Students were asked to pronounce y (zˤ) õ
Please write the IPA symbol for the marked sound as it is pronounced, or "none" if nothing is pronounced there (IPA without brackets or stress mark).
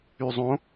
zˤ